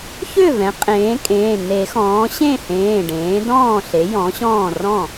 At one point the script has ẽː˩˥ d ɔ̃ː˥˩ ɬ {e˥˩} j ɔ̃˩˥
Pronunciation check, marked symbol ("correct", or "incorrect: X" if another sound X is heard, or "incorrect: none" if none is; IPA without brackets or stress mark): incorrect: e˩˥